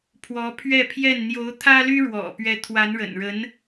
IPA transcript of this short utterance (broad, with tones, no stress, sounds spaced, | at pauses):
pʰ w ɔ˧˥ pʰ ɥ ɛ˥˧ pʰ j ɛ˥˩ n n̪ j o˧˥ ʊ̯ t̪ʰ ä˥ l y˥ ɻ w ɔ̰˨˩ p ɥ ɛ˧˥ t̪ʰ w a˧˥ n ɻ ə̰˨˩ n ɻ ə˧˥ n